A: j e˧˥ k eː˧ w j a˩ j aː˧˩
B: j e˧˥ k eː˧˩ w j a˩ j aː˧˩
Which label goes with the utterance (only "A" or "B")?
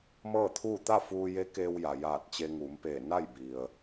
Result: A